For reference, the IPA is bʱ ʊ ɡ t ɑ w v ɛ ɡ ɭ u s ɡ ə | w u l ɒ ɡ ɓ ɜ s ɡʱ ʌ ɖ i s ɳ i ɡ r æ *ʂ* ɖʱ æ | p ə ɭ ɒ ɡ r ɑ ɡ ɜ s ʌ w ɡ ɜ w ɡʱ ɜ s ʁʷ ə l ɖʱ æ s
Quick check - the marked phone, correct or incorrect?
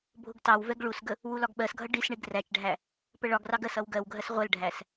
incorrect